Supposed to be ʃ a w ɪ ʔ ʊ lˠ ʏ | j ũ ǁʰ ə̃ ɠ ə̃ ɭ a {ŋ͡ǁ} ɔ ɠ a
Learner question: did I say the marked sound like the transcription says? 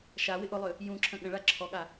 no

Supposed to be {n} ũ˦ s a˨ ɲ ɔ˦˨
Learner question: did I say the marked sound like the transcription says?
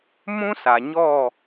no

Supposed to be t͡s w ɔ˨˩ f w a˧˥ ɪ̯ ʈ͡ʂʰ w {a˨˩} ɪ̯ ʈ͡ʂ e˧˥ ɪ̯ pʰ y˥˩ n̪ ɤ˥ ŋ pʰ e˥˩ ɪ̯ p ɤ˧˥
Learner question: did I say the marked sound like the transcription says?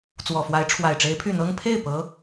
yes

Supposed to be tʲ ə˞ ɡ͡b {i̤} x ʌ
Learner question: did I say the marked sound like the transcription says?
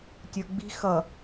yes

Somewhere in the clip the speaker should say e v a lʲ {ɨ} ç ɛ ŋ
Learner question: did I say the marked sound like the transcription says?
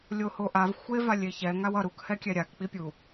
no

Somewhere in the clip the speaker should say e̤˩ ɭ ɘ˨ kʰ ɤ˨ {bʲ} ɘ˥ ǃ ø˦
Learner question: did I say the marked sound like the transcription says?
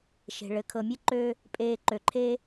no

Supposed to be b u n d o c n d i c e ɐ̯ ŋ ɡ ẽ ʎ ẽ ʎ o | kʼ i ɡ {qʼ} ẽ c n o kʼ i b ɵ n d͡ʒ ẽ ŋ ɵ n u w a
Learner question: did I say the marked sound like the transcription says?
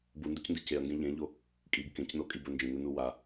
no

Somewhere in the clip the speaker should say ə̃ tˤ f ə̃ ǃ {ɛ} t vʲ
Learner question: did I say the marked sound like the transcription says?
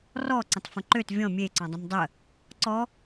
no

